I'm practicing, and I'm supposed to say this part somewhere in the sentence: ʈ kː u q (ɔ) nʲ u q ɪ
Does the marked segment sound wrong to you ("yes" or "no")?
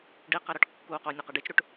yes